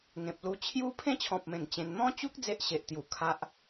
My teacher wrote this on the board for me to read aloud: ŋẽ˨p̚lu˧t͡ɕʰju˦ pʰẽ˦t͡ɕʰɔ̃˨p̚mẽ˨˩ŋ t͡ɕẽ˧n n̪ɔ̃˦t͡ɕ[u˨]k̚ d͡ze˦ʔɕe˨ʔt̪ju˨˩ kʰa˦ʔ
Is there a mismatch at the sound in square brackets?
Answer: yes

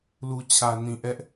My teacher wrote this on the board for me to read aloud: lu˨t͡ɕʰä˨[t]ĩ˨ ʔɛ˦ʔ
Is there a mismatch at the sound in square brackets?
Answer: yes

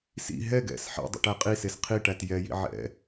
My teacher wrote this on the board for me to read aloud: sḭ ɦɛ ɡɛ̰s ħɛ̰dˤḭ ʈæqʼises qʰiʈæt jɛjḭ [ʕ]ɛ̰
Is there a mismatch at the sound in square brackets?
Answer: no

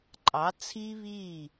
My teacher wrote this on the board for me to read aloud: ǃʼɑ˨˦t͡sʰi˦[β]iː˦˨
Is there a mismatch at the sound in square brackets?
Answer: no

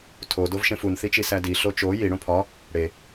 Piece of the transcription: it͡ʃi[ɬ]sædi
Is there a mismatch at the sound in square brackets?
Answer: yes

